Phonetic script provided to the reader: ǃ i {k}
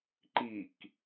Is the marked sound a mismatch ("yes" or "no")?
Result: no